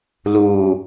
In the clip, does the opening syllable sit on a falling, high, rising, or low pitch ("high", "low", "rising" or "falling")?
low